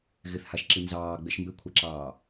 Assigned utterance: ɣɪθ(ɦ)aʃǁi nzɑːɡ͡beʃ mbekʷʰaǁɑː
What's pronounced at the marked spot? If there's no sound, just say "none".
h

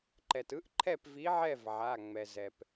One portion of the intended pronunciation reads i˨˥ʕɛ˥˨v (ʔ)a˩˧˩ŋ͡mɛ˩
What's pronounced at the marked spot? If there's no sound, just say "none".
ʕ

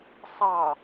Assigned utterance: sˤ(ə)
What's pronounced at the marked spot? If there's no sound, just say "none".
ɑ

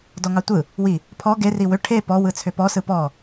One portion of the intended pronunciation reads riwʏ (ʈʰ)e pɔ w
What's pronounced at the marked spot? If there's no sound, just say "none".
ʈʰ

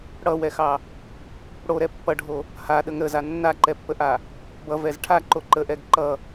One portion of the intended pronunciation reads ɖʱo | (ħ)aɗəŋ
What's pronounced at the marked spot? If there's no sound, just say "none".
h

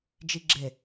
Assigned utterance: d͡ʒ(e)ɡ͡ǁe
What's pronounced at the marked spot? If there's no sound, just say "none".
i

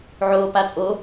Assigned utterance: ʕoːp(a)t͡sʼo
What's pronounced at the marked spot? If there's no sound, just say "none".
a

